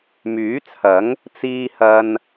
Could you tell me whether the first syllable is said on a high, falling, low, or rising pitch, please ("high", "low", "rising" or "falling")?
rising